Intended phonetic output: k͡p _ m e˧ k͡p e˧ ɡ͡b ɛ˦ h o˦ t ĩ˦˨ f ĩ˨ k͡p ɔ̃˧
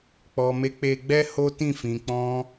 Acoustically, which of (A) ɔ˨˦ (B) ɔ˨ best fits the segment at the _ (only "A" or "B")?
B